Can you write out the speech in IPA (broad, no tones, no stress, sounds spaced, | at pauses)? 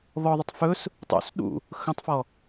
β ɔ ðˤ ɪ tˤ f ɵ s | tˤ ṵ s ɗ ṵ | x ə̃ tˤ f ɔ